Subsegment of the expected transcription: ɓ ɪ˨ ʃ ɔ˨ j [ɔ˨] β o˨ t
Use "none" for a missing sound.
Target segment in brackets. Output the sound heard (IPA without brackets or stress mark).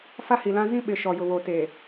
ʊ˨